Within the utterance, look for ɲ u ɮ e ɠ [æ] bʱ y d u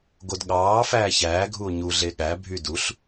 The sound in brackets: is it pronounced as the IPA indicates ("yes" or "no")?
yes